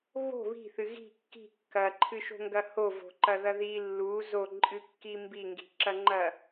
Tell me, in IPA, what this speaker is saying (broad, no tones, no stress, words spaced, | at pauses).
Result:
βo̤ βi̤θɨ ɣi̤ kːi̤ kːɐǃʰɨʃo̤ŋɡɐ hovo̤ǃɐðɐ ði lːu zoǃʼɨkːi mbiŋɡi̤ǁɐŋ͡ǃɐ